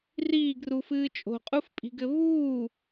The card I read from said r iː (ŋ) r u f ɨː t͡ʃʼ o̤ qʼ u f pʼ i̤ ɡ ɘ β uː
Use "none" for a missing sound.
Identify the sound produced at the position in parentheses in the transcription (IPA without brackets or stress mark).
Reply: ɡ